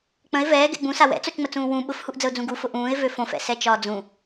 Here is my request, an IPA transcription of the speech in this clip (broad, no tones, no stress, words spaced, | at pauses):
k͡pə̃ɪ̯ vɛːɡɛ̰ ɡ͡bũsa wɛ̰t͡sot͡ʃŋ͡mət͡sũː wũ ɓʊfhuʔd͡zəʊ̯d͡zũ ɡufʊ ʔũːɪ̯vø fõfɛ̰sɛt͡ʃɒː d͡zũ